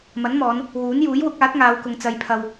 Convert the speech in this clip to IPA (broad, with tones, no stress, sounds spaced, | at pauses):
m ɐ˨˥ n m ɔː˨˧ n | w uː˨˥ n j uː˨˥ j w ʊ˨˥ k̚ aː˨˥ t̚ ŋ aː˨˧ w k ʊ˨ ŋ t͡s ɐ˨˧ j pʰ ɐ˨ w